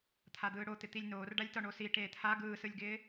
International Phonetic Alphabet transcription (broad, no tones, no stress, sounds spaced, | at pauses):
t̪ʰ a d̪ ɯː ɽ o t̪ ɪ t̪ i lʲ n oː r ɖ a lʲ t ɒ ɳ o s i ʈ eː t̪ʰ a ɡ ɯː s ɯ lʲ ɡ ɪː